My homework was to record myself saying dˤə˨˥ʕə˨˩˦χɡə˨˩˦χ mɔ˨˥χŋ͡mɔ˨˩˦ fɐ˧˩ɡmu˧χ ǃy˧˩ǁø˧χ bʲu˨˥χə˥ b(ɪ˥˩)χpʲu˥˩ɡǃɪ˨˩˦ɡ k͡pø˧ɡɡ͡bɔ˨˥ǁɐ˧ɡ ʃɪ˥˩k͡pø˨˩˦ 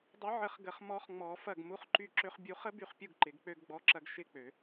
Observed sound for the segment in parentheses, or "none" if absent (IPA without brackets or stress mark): y˥˩